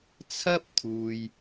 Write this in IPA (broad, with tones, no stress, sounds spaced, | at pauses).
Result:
t͡sʰ ɐ˥ p̚ t̪ʰ uː˨ j